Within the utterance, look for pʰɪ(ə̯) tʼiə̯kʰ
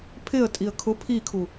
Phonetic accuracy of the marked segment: correct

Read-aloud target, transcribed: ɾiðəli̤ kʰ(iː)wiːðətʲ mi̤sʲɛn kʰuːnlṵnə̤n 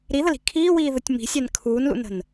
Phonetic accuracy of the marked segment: correct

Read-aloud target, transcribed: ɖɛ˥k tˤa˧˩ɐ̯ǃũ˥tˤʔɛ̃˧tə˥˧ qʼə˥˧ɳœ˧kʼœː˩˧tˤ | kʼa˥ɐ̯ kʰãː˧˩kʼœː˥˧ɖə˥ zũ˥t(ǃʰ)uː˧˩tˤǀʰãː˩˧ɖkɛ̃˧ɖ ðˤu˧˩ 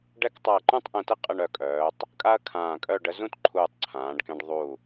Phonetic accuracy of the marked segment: correct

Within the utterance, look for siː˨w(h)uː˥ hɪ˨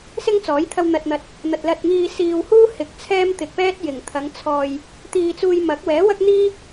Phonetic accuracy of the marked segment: correct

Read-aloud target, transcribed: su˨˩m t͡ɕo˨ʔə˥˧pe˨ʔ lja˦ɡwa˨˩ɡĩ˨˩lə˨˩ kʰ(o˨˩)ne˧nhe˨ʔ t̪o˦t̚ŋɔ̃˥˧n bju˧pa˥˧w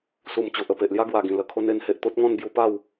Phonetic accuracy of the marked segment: incorrect: o˧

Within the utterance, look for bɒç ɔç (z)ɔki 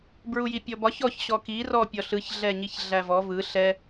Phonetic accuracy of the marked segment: incorrect: ɕ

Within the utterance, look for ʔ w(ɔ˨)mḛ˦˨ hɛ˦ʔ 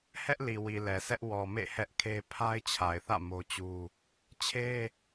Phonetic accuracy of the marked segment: correct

